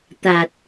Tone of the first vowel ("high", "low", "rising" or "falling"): low